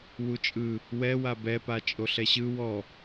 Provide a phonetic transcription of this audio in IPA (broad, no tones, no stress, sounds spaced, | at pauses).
w u t͡ʃʼ ɯ | w ɛ w a b ɛ p a t͡ʃʼ o ɬ ɛ ɕ ɯ w ɔ